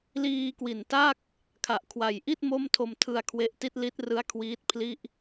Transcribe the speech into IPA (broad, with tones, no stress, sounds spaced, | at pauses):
l iː˧ k w i˨˩ n t a˥˩ k̚ | kʰ a˨˩ ʔ kʰ w a˨˩ j ʔ i˥˩ t̚ m o˥˩ m tʰ o˧ m tʰ ɯ˧ a̯ kʰ w e˦˥ ʔ t i˥˩ t̚ l i˦˥ t̚ r ɯ˦˥ a̯ kʰ w iː˦˥ t̚ pʰ l i˥˩ ʔ